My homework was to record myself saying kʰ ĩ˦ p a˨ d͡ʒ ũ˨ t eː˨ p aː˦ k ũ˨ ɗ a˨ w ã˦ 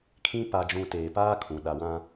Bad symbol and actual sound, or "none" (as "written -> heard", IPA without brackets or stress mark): k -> kʰ